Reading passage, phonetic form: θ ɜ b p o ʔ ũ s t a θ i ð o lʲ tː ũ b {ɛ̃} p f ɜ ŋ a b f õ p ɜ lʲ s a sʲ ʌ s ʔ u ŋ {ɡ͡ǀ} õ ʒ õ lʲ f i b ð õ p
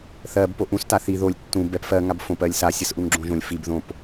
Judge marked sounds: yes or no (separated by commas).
no, no